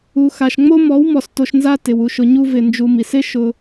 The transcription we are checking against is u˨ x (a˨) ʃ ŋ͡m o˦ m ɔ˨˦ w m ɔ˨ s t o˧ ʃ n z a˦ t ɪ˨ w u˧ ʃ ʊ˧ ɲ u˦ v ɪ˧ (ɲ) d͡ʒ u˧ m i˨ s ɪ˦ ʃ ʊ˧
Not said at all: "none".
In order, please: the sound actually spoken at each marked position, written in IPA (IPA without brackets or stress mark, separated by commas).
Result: a˨, n